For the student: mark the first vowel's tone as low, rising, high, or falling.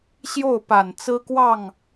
falling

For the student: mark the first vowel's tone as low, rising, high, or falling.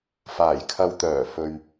low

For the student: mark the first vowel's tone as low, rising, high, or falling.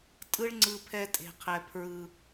high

